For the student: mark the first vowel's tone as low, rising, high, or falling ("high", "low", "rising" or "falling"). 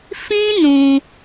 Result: high